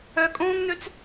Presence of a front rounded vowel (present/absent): present